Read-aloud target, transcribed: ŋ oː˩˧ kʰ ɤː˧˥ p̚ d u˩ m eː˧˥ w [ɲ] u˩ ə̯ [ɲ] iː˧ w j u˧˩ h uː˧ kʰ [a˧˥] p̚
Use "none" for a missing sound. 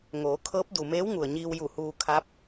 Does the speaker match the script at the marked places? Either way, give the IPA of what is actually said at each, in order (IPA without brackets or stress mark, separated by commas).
ŋ, ɲ, a˧˥